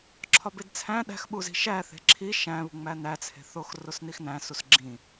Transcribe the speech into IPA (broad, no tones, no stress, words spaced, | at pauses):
ǁʰɒbedt͡sʰæ̃ ɗæ̤xɓuzi̤ ʃæθe̤ ǁʰi ʃæ̃βṳŋ͡mæ næt͡sʰe̤θox rosnixnæ̃ susɡ͡ǁĩ